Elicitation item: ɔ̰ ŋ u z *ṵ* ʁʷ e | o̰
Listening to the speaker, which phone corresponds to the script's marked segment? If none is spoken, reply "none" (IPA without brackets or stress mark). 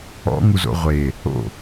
o̰